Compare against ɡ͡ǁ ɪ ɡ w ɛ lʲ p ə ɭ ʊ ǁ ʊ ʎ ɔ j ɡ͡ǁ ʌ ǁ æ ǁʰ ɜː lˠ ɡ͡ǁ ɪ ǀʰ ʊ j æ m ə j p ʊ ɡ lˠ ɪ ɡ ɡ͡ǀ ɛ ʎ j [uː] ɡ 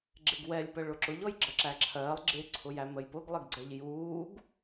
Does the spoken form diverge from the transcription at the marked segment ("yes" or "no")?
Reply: no